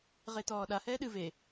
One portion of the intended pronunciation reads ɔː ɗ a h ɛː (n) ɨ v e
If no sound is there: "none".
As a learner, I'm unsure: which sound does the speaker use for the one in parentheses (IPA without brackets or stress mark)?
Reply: ɗ